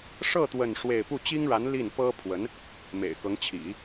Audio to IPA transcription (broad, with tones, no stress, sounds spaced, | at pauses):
ʂ ɤ˥˧ t̪ w ə˥˧ n ʂ w e˥˧ ɪ̯ p u˥˩ t͡ɕ i˥ ŋ ɻ a˧˥ n l i˥˩ n p ɤ˥ pʰ w ə˧˥ n | m ḛ˨˩ ɪ̯ k ɤ˧˥ ŋ t͡ɕʰ ḭ˨˩˦